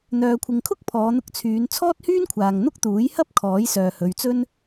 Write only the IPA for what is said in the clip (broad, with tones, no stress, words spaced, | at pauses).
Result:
n̪œː˨kʷʰɪ˨ŋkʰʊ˥k̚ pʰɔː˨˧n̪ʊ˧k̚ t͡sʰyː˨˧n t͡sʰɔː˥t̚hyː˥nkʷʰaː˨ŋ n̪ʊ˥k̚t̪uː˨˥j hɐ˥p̚ kʰɔː˨˥jsœː˨hɵ˨˧ɥt͡sɵ˥n